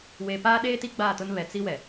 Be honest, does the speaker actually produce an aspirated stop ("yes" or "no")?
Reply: no